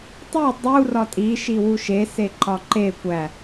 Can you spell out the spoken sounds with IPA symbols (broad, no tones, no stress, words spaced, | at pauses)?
tˤu dˤu rɒtʼi ʃiwuʃe seǃɒǃe kʷæ